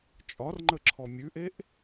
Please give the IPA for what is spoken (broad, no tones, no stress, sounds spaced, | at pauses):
t͡ʃʼ ɒ r ŋ͡ǃ ə ǁʰ ɔ mʲ ʉ ʔ e ʔ